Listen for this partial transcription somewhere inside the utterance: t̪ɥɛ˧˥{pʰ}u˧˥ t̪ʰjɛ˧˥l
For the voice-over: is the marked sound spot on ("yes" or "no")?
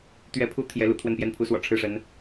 yes